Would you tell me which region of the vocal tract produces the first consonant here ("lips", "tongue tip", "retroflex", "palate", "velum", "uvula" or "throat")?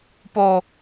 lips